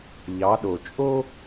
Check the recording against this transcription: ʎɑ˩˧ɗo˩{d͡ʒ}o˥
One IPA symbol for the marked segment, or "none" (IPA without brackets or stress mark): t͡ʃʼ